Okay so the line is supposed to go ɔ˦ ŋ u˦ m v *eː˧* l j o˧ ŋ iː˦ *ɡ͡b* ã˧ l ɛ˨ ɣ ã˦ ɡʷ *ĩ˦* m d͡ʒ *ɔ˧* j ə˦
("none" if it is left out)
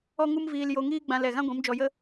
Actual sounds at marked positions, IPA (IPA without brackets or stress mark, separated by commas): iː˧, ɡ͡b, ĩ˨˦, ɔ˧